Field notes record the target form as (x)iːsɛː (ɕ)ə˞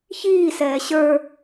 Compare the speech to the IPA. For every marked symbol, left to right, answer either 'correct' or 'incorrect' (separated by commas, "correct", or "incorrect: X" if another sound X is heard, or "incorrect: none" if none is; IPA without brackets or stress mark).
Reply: incorrect: ç, correct